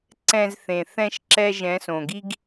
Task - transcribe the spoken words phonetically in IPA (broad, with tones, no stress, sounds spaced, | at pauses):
ǀ ɛ̃˨ z θ ẽ˨ θ ɛ̃˦ ʃ ǁ ɛ˦ ʒ ɛ̃˨˦ s õ˨ ɡ i˦ ɡ